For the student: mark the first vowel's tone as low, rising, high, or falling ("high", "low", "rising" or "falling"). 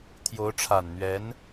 rising